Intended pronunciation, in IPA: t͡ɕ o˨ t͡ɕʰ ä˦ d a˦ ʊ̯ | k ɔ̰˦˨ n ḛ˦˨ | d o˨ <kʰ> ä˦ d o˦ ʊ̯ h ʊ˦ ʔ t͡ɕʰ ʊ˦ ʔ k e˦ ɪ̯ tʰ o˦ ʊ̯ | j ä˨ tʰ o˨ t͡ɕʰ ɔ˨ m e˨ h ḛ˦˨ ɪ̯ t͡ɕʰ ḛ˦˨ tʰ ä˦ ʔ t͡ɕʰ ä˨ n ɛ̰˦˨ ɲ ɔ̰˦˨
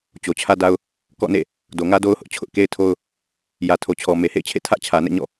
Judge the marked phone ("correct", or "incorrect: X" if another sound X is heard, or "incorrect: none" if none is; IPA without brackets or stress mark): incorrect: ŋ